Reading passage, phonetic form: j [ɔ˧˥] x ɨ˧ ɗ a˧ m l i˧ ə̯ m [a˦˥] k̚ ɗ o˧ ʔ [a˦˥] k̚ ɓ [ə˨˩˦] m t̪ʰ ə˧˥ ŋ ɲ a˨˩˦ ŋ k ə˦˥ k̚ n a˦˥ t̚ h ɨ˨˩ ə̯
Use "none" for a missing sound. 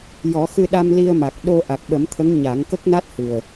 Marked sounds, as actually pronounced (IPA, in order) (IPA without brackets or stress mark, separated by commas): ɔ˨˩˦, a˨˩, a˨˩, ə˨˩˦